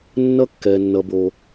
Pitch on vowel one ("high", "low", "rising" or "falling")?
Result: high